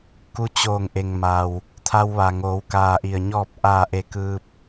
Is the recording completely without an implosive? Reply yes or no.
yes